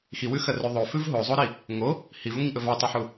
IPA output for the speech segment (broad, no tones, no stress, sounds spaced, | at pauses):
x i w ʉ x ɐ r ʉ ðˤ o f ʉ v ɦ o zˤ o ɾ i | ŋ o | h i v ʉ ŋʷ i ɲ ʔ ɵ v a tˤ o ħ u